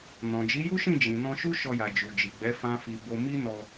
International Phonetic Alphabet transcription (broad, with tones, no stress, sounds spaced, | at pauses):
n ɔ̃˨ d͡ʒ i˨˦ j u˦ ʃ ĩ˦˨ d͡ʒ ĩ˨ n ɔ̃˧ ʃ u˦ ʃ ɔ˧ j a˨ d͡ʒ u˨ d͡ʒ i˨ ɡ͡b ɛ˨˦ f ã˦ f i˧ b o˧ m i˦ n ɔ˧